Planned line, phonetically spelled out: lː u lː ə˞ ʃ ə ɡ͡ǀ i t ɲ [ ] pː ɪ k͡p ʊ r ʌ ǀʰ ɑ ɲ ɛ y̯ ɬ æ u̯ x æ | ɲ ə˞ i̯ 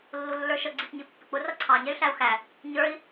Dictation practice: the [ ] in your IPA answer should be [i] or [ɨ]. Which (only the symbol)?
i